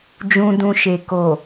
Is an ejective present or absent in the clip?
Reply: absent